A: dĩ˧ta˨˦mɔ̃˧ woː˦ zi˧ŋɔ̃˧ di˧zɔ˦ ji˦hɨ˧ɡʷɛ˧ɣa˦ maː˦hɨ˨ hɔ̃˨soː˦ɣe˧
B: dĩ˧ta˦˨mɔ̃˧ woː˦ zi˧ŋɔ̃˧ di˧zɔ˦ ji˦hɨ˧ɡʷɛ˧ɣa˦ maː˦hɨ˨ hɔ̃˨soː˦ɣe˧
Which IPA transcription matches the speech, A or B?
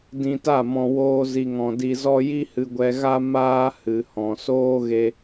B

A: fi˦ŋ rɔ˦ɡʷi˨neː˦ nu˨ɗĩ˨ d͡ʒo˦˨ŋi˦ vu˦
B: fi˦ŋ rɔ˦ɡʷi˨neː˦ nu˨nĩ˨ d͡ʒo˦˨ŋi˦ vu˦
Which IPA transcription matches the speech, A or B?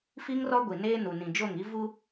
B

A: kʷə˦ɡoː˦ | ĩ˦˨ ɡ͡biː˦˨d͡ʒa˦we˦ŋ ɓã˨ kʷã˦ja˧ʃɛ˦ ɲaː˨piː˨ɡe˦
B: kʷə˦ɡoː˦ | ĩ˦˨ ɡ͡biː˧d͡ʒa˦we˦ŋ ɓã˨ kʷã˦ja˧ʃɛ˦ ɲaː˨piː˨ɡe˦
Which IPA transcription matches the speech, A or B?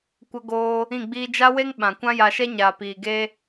B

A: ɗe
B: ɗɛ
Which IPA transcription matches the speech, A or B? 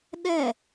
B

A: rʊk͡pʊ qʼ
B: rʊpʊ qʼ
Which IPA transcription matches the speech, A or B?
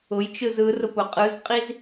B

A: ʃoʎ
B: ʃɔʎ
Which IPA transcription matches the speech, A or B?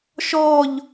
B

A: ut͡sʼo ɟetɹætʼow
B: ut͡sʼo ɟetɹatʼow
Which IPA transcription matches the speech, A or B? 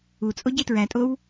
A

